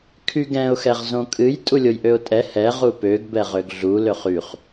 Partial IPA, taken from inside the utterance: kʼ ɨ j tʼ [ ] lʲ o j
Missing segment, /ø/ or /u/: u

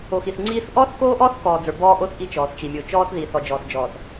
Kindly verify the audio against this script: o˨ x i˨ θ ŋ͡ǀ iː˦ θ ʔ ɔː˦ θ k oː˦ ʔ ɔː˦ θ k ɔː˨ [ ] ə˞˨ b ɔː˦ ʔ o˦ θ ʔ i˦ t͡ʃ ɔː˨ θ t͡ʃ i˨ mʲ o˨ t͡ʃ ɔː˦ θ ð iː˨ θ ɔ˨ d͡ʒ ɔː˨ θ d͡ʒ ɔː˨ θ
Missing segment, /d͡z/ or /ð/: d͡z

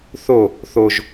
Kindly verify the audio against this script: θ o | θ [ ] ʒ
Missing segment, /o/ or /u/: o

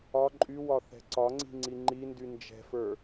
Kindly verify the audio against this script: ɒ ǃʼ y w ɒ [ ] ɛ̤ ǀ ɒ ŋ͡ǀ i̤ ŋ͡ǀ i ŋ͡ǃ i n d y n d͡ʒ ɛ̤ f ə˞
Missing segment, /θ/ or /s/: θ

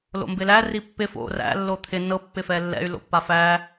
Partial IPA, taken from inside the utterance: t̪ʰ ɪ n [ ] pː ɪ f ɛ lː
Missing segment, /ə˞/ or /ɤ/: ɤ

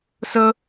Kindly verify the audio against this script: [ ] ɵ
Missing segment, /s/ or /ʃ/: s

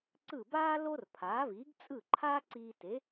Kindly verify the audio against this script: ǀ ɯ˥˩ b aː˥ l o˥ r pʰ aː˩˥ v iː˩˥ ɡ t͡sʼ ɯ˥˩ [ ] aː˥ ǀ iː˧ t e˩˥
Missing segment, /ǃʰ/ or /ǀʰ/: ǃʰ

